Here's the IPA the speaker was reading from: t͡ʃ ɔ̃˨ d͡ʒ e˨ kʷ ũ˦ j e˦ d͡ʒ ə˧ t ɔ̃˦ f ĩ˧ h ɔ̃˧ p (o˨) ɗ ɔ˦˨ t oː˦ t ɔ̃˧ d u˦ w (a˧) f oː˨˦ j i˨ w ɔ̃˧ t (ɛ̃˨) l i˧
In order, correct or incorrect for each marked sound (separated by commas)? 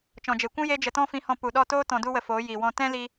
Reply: incorrect, incorrect, incorrect